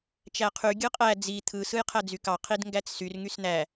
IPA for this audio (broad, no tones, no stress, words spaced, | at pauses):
t͡ʃæqʰy ɡʲɯqʼæ d͡zi t̪ʰɯ sɯjqʰæd͡zykɑ qʰidŋɡæt͡ssyr ŋysn̪æ